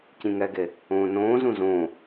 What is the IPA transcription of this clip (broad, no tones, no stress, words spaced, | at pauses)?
cĩŋɛɡe | õːnõː zũzõː